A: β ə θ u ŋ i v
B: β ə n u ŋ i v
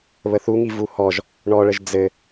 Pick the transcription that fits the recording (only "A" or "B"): A